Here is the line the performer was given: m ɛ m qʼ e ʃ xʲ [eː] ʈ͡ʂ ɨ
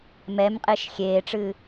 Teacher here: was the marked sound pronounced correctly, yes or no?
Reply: yes